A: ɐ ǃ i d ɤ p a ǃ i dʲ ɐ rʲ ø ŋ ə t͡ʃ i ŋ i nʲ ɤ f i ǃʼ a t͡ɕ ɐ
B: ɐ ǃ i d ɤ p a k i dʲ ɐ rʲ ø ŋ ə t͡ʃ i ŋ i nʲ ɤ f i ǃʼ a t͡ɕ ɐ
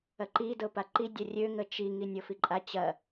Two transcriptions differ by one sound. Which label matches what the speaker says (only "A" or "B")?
A